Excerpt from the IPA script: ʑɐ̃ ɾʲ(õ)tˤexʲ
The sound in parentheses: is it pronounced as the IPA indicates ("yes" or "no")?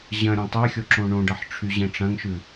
yes